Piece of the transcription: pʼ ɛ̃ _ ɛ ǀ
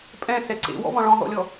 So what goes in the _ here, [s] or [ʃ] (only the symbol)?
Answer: s